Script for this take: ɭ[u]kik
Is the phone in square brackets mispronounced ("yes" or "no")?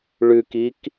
yes